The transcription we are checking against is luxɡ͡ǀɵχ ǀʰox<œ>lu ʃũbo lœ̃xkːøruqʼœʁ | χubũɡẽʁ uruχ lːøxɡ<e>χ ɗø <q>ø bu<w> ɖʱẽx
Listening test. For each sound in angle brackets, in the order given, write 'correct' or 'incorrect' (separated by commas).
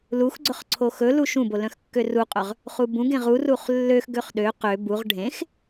incorrect, incorrect, correct, incorrect